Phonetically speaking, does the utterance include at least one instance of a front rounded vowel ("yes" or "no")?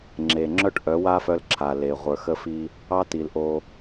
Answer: yes